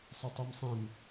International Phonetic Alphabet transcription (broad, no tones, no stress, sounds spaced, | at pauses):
sˤ ɘ tˤ i m sˤ ĩ m